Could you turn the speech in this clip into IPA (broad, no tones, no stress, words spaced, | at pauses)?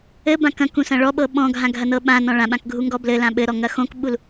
ɘbã kɐ̃kũ sɐ̃ɭɔɓɤ ɓɔ̃ɡʱã ɡʱɐnɤɓãnɔ̃ ɭãɓãk ɡʱuŋɡɔblɘlã ɓɘɾɔ ŋɐxõkɓul